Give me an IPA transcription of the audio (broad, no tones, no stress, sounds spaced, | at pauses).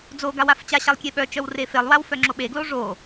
d͡z o ɡ a w a f t͡ɕ a ɕ a lˠ kʲ e ɓ œ t͡ʃ œ w r e f e lˠ w a w f œ ŋ͡ǁ o ɓ e ɡ l o ʐ o